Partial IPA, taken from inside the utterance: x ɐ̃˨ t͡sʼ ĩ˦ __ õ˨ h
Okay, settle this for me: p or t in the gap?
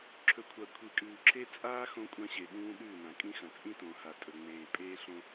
t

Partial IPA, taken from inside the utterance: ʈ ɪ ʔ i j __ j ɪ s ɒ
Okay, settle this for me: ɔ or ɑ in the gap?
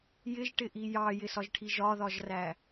ɑ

